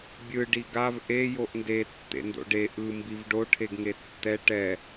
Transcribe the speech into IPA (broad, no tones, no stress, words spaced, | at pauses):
bʲɯ ɖiɡav ʔe joʔnde tːḛndo̰ɖe ʔɯ mbivɖo ʈʰeɡŋetːɛ ʈɛ